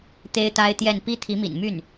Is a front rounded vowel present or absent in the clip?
present